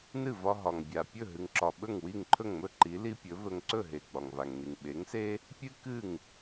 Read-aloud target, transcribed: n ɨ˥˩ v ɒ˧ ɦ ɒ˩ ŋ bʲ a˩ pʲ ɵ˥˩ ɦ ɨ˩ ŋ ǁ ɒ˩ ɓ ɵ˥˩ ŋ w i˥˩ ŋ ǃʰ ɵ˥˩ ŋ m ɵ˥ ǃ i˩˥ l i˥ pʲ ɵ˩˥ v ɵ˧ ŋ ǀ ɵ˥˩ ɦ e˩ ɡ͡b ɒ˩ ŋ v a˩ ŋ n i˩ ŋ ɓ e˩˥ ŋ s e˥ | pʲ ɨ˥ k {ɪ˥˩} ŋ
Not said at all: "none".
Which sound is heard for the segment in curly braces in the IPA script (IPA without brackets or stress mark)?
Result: ɨ˥˩